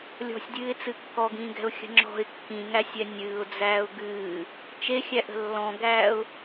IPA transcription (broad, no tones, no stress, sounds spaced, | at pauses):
lʲ ɔ̤ sʲ dʲ ɨː ɪ̯ t͡s ɨ kː ɔ ɡ ĩː ɡ ɛ̤ ʊ̯ xʲ ə̤ ŋ͡ǁ ɔ̤ ɪ̯ kː ĩ ŋ æ sʲ ɛ nʲ ɨː ʊ̯ d͡z æː ʊ̯ ɡ ɨː | t͡ʃ e xʲ æ ʔ ə̤ lː ɔ̃ ɡ æː ʊ̯